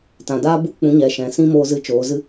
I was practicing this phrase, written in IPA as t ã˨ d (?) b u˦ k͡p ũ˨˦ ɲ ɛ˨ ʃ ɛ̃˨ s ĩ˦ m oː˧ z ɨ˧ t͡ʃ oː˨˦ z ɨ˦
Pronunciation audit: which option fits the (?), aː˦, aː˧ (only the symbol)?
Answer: aː˦